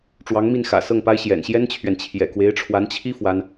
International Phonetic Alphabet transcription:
ʈ͡ʂwɑ˧˥ŋmi˥˩n xä̰˨˩sɤ˥˩ŋpa˥ɪ̯ ɕjɛ̰˨˩nɕjɛ˥nt͡ɕʰɥɛ˨n t͡ɕʰjɛ̰˨˩kwe˧˥ɪ̯ʈ͡ʂʰwa˧˥nt͡ɕʰi˥ fwa˥n

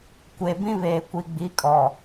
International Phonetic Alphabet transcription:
kʷe˨bĩ˦βeː˨kʷi˨ ɡ͡bi˨˦kʼɔ˨

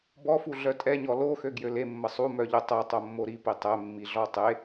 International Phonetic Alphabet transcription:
bɔfu ɮœtʼɛɲɔ lo xøɡjølemːə sˤumœ ʎotˤɛ tˤomːoɾipi tˤɛmːi ɮɔtˤe

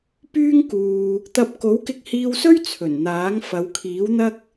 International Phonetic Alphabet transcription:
pyː˥ŋ kuː˧ | t̪ɐ˥p̚ ko˨˥wkɪ˧k̚hiː˧wsɵ˥ɥ t͡sʰɵ˨˩nn̪aː˨˥ŋ fɐ˨˧wkʰiː˨˥wn̪ɐ˥k̚

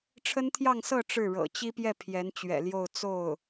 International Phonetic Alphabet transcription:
ʈ͡ʂʰə˥nt̪ʰjɑ˥˧ŋsɤ˥˧ ʈ͡ʂɻ̩˥˩ɻɤ̰˨˩ t͡ɕi˥pjɛ˥˩ pʰjɛ˧˥nt͡ɕɥɛ̰˨˩ljo˥˧ʊ̯ t͡so˥˩ʊ̯

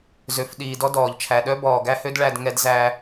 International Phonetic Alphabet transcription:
zø˨f ɗiː˨dɔ˦dɔː˨ʎt͡ʃʰæ˨ ɗœ˦bɔː˨ɡæ˦hø˦d ɭæ˦dŋɛ˦dzæ˦

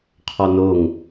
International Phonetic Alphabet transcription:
qʰɔnoŋ

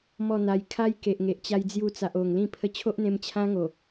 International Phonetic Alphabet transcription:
mɔ˥˧n̪a˧j kʰa˦jke˨ʔŋe˨ʔ t͡ɕa˧jd͡zju˧t͡sa˨ʔ o˨˩ŋlĩ˥˧ pʰə˧t͡ɕʰo˦ʔn̪ẽ˧m t͡ɕʰã˦ŋo˨˩

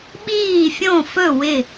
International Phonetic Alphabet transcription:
ɓiː˧˩fʲõ˧˩fɵ˧˩ wɪ˧˩

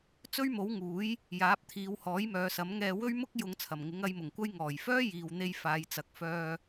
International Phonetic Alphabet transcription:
t͡sɵ˥ɥmo˨˥wŋuː˨˥j | jaː˨˥p̚t̪ʰiː˨˧w hɔː˨˥jmœː˨˧sɐ˨˥mŋɛː˧ wɵ˥ɥmʊ˥k̚jʊ˨˧ŋ t͡sʰɐ˨˩mŋɪ˨˥ŋ ɐ˧jmʊ˨˩ŋkʷɐ˥j ŋɔː˨˩jfœː˥ jiː˨wn̪e˧jfaː˨jt͡sɐ˨k̚ fœː˨

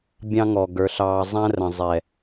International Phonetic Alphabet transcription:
bʲɑ̃˦ŋɔ˨ɡə˞˨˦ɬɑː˧ zˤæ̃˦rə̃˨ zˤɛ˨

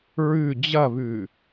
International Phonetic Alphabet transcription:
ɹʉ d͡ʑɐβʉ

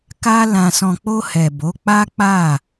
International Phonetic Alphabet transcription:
ka˧lã˨sɔ̃˨k͡po˧ hɛ˨bo˨˦k͡pa˦ k͡pa˦˨

